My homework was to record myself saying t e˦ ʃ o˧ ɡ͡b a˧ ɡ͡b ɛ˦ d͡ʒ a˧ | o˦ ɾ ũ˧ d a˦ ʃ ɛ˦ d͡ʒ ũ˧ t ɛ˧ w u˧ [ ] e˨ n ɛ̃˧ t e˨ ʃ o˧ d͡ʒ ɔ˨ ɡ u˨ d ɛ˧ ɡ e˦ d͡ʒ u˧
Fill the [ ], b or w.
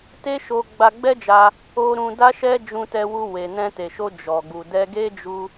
w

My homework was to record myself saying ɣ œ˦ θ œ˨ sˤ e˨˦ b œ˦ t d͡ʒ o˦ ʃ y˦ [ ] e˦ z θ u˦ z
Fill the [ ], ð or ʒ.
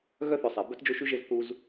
ʒ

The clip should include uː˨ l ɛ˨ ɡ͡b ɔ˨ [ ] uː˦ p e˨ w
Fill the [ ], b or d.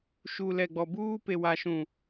b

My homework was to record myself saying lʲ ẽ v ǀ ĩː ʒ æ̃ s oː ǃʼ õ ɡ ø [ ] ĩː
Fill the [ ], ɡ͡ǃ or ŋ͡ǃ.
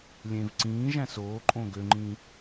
ŋ͡ǃ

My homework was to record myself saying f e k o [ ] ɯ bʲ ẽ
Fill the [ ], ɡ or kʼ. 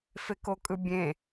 kʼ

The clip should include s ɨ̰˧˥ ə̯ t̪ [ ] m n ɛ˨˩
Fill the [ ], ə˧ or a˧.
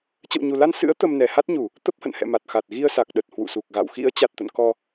ə˧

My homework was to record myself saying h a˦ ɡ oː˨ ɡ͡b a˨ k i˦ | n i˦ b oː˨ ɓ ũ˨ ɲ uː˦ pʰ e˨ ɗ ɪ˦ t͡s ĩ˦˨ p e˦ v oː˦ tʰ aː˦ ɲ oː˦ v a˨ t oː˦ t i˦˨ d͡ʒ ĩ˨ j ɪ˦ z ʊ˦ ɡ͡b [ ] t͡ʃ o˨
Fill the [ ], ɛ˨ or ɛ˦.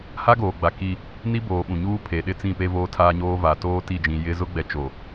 ɛ˨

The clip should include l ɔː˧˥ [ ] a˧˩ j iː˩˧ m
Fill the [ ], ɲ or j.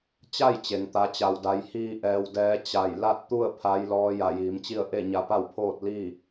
j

